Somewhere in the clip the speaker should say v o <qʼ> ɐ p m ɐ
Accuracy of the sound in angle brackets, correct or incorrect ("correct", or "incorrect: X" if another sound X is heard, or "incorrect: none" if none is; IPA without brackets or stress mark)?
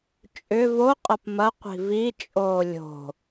correct